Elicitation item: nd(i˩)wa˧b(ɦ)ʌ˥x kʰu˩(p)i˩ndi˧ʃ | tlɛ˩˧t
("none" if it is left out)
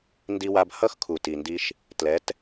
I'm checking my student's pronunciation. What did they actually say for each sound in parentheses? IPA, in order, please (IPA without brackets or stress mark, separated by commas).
i˧, h, t